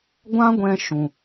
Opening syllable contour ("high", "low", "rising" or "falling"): high